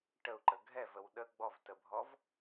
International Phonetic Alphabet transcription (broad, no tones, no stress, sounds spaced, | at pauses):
ʈ ə u̯ ǃ ə ɡʱ ɛ v ə w ɗ ə ɡ͡b ɔ v t ə bʱ ɔ v